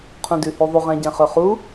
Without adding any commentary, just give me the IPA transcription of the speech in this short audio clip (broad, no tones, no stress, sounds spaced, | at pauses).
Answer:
qʰ ũ d ʉ h ʉ ðˤ u ʁ ɛ̃ ɟ ɛ̃ χ ɵ χ u